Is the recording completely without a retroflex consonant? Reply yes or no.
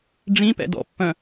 no